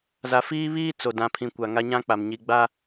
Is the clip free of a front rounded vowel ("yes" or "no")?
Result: yes